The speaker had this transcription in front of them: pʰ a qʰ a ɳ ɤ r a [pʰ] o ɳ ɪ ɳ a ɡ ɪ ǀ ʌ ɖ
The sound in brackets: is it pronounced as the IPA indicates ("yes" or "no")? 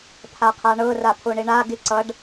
yes